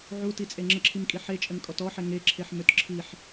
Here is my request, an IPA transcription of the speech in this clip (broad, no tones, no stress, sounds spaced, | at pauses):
ʕ u t i t͡sʼ e ŋ͡ǁ ə ǁʰ i m kʼ i ħ e t͡ʃʼ ə n kʼ ɔ t ɔ ħ ɛ ŋ e ǁʰ e ħ m ø t ǁʰ i ħ